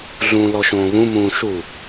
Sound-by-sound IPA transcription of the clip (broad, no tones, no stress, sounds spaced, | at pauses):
ɮ ũː l ɔ ʃ õː β ũ m ũː ʃ u